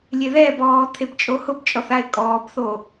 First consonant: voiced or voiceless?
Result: voiced